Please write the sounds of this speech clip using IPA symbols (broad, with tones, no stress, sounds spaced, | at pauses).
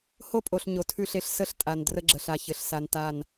h o˦ pʼ o˨ ɬ ɲ o˨ tʰ ʉ˦ ɬ e˦ ɬ s ə˦ ɬ tʼ a˨ n d r ə˦ ɡ͡ǁ ə˨ ɬ a˨ ç ɘ˨ ɬ s a˨ n t a˦˨ n